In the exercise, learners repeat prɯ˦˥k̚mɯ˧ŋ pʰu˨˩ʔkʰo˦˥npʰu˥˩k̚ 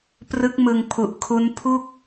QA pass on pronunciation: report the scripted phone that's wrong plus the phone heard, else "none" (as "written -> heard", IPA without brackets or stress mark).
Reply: o˦˥ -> u˦˥